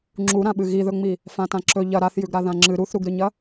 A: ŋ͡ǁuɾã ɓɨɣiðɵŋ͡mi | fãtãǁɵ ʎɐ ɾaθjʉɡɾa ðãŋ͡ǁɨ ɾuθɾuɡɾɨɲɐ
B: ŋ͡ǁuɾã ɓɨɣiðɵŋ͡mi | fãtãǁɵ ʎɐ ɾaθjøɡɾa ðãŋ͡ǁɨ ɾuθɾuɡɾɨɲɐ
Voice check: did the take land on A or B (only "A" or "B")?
A